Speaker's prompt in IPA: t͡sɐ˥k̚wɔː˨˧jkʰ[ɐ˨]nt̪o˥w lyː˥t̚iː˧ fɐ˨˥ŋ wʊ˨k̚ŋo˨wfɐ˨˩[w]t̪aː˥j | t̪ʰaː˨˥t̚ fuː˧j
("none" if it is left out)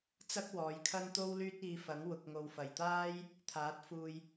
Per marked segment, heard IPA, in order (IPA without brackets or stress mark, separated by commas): ɐ˥, j